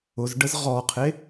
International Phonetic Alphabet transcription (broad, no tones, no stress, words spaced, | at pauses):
ʊzɖəz ʁɔqʰe